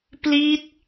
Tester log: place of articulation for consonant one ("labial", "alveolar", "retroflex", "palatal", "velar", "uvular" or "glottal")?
labial